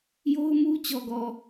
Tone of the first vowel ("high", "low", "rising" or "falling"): high